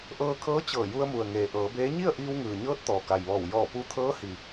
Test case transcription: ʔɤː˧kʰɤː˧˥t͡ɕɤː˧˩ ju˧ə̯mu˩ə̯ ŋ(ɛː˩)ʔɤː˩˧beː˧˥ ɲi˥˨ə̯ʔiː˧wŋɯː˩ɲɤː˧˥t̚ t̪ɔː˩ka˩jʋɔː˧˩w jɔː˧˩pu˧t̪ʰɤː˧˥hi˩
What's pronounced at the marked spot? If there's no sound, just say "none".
eː˩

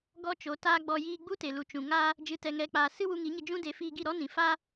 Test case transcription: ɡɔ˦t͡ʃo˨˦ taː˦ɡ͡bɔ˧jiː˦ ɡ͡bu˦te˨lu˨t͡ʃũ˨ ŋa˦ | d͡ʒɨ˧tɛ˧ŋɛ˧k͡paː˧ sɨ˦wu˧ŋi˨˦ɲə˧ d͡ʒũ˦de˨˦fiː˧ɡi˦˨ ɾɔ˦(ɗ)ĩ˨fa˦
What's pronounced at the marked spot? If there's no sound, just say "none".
n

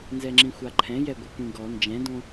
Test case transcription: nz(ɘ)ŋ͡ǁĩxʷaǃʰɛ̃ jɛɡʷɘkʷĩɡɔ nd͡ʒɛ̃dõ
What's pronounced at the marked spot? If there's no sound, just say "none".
ɛ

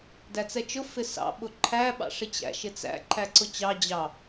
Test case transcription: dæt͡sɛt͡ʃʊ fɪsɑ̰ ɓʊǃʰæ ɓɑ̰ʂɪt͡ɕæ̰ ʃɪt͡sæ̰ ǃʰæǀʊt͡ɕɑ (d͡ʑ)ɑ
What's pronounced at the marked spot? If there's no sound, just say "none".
d͡ʑ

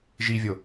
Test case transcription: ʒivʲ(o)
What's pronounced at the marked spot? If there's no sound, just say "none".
o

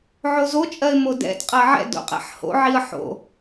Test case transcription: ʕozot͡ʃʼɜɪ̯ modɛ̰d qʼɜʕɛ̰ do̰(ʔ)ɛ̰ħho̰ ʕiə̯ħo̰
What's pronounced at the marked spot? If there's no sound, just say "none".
qʼ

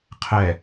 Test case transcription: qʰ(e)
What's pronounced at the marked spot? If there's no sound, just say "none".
ɛ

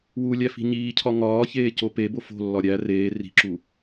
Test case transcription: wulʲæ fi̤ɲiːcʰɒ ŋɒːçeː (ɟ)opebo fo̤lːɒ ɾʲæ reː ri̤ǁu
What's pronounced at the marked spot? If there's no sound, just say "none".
c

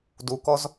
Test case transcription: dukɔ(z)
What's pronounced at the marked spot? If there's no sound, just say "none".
z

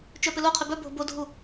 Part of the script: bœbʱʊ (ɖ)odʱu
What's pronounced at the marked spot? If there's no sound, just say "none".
b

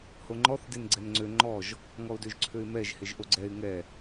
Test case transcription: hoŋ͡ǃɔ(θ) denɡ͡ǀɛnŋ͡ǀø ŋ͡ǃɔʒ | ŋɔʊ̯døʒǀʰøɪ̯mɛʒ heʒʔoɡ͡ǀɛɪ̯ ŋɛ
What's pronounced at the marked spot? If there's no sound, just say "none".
θ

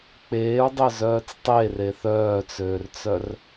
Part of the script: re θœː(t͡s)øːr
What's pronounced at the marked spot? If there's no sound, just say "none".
t͡s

